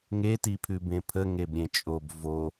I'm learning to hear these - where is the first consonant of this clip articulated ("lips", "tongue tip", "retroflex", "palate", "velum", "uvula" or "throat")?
velum